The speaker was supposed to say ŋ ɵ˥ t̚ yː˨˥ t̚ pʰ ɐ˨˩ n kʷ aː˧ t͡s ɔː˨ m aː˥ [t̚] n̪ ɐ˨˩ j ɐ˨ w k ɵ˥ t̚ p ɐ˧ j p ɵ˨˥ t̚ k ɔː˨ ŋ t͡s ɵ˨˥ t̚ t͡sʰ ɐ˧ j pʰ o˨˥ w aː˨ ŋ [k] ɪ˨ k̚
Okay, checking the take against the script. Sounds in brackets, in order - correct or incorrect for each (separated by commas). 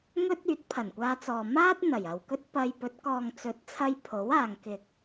correct, correct